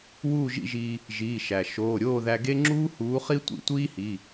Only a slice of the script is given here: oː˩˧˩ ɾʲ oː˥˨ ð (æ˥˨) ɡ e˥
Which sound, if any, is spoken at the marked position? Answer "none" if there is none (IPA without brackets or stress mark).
æ˧